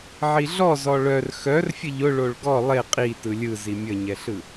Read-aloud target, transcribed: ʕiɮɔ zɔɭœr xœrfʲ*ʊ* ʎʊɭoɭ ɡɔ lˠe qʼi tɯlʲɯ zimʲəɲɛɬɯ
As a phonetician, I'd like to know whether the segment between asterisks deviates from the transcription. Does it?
yes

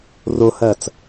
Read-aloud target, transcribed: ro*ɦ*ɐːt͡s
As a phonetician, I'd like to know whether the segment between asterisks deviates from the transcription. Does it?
yes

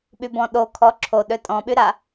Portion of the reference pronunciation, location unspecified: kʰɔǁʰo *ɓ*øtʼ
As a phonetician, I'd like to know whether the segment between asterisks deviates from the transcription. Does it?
yes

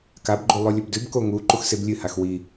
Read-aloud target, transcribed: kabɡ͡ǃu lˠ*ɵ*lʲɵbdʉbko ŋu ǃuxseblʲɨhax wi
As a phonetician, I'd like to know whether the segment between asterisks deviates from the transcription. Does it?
yes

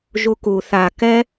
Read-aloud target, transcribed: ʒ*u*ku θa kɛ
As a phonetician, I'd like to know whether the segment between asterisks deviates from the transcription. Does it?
no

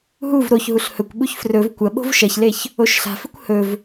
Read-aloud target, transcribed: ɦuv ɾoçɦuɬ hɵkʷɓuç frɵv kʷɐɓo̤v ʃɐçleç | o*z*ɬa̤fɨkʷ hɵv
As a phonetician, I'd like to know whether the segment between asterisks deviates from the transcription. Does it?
yes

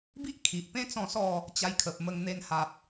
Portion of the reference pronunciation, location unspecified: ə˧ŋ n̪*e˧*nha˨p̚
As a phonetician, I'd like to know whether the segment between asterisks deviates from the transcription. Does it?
no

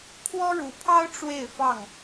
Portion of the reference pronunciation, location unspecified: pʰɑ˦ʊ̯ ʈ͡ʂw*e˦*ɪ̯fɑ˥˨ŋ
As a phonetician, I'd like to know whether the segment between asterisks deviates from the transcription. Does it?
yes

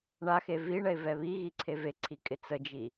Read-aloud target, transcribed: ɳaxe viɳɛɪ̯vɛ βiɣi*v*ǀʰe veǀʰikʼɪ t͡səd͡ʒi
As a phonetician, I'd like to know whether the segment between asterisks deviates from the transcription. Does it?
yes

